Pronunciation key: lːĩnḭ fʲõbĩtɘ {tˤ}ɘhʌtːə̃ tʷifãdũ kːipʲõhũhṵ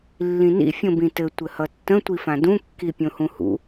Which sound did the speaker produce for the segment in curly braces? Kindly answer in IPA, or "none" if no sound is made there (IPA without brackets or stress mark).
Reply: tʷ